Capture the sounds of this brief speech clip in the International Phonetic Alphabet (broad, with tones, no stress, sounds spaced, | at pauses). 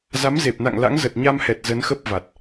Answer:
z a˨˦ m z e˨˩ p̚ n a̰˧˨ ŋ l a̰˧˥ ŋ z ə˨˩ t̚ ɲ a˧ m h ɛ˨˩ t̚ z ə˨˦ n x ə˦˥ p̚ v a˨˩ t̚